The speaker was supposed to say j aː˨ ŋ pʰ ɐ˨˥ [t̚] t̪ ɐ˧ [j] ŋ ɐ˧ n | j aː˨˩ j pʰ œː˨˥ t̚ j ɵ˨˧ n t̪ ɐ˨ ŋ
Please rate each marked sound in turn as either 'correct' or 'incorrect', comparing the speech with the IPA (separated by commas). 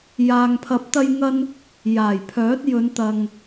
incorrect, correct